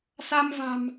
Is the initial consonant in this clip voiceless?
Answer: yes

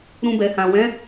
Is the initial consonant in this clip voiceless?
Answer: no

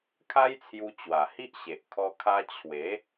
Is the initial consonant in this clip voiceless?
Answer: yes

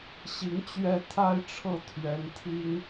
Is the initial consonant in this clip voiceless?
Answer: yes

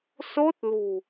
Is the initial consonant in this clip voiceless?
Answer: yes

